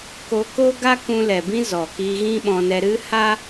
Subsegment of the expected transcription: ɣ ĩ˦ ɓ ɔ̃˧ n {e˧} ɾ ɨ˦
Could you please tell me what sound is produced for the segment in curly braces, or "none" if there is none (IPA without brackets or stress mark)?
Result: ɛ˧